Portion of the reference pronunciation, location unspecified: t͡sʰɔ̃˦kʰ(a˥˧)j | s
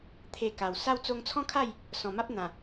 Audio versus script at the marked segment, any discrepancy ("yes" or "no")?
no